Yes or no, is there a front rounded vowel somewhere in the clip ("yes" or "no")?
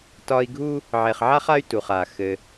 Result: yes